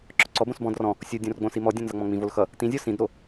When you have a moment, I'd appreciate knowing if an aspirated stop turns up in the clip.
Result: no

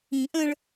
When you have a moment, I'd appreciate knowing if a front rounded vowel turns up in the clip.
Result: no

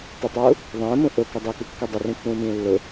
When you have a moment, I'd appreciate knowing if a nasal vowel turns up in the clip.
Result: yes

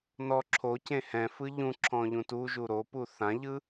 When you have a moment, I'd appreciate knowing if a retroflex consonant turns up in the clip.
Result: no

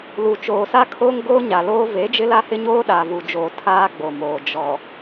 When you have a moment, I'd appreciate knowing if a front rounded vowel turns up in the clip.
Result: no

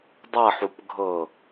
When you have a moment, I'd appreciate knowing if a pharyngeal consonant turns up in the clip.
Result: yes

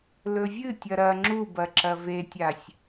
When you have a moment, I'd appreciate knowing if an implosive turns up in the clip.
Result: no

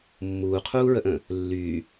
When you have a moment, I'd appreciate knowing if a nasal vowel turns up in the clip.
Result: yes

